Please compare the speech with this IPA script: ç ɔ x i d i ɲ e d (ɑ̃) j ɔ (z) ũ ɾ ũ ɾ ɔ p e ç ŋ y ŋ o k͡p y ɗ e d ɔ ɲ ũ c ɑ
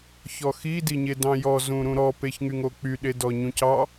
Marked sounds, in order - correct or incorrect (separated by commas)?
correct, correct